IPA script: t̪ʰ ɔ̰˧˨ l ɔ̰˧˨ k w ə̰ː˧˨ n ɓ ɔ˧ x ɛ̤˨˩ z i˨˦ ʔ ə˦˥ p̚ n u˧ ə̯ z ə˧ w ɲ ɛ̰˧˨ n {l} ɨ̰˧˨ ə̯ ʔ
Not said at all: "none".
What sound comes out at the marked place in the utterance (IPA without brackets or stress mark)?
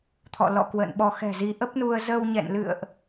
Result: l